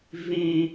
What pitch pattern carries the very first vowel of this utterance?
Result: high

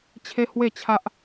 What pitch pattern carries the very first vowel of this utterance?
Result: high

